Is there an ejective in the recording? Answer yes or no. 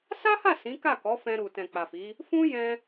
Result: no